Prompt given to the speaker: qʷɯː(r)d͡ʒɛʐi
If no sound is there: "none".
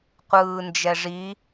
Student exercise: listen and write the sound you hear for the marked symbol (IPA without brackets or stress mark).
n